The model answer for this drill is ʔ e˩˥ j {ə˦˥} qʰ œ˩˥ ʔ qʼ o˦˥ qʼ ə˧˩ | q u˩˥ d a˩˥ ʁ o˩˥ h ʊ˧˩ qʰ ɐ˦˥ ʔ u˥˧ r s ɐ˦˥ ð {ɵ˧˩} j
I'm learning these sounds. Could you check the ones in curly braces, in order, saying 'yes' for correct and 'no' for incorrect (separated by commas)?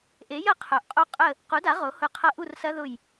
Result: no, no